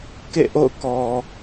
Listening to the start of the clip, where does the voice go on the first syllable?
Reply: falling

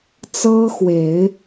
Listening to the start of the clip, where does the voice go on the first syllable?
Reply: high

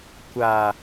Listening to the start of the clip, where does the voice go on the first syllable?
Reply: low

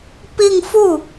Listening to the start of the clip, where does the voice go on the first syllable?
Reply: falling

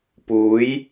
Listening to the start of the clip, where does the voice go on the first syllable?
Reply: rising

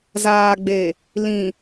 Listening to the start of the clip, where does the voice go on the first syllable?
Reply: low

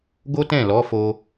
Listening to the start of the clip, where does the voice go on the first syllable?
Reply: high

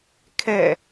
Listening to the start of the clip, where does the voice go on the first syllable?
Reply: falling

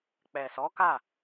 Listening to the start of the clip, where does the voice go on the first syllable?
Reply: low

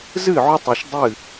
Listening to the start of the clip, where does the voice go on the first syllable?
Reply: falling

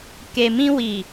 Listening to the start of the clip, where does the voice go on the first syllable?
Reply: low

